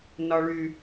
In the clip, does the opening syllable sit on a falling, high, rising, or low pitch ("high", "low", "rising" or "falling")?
low